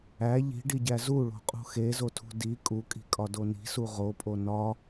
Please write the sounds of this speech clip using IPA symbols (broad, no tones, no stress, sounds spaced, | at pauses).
æ ʎ i̤ ɖ i ɟ æ z u ɭ o̤ qʼ ṳ x e z o tʰ ṳ d i kʼ u kʼ i̤ kʼ ɒ d o n i̤ s u ʁ o pʼ o n ɒ